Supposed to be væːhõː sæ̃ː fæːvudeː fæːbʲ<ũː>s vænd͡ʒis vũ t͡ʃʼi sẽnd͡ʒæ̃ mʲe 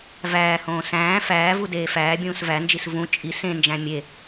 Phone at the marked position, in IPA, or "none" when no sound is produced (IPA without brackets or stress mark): ũː